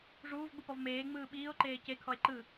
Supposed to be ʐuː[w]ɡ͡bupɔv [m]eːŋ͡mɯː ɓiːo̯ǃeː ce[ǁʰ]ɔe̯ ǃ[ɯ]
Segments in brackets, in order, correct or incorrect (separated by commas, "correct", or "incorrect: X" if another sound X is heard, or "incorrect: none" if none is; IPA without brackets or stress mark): incorrect: v, correct, incorrect: kʰ, correct